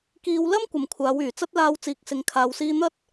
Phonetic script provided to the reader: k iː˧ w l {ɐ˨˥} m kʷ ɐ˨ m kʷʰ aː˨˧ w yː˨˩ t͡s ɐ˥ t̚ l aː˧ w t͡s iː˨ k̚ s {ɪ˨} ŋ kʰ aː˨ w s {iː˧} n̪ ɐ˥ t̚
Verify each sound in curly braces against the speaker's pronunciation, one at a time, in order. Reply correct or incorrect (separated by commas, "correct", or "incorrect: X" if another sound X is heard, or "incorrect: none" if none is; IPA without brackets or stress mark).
incorrect: ɐ˥, correct, correct